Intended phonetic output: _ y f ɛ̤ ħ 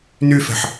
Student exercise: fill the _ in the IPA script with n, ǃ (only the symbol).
n